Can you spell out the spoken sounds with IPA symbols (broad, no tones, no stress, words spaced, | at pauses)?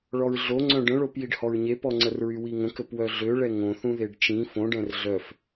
ɭɔɹɮo ŋ͡ǀœ̃ɖə̃ɭop jiɖhɔɹɲepɔ ŋ͡ǀərɹywiŋə̃ kəpwœɮøɭɛ ŋõθũ ðeɖt͡ʃĩ fõɖɛ̃r ɮœf